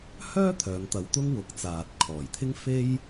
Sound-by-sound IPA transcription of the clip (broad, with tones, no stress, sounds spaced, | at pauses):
h œː˥ t̪ʰ œː˨˧ ŋ t̪ ɐ˨˧ w t̪ ʊ˥ ŋ w ʊ˨˥ k̚ t͡s aː˨ t̚ kʰ ɔː˨˩ j t̪ʰ ɪ˥ ŋ f e˥ j